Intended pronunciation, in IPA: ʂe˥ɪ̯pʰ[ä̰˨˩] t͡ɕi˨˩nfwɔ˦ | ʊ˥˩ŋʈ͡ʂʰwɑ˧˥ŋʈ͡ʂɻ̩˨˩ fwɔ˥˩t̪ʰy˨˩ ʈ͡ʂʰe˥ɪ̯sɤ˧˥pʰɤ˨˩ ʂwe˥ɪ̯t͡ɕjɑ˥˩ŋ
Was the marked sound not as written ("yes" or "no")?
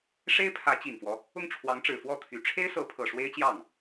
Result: yes